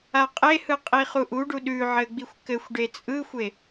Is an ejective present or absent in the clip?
present